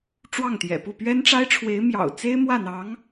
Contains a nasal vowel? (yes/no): no